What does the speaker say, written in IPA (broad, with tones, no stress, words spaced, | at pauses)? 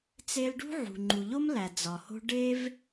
t͡se˧lɖṳ˦ʕṳ˨ ŋ͡ǃu˨ʎo˦mlæ˨ d͡zɒ˨ho̤˦ ɖe˦v